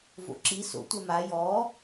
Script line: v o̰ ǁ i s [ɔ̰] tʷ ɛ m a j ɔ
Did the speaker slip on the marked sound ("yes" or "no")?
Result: yes